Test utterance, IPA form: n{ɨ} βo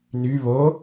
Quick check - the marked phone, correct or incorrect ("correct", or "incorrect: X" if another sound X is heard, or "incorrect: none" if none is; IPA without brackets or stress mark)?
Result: incorrect: y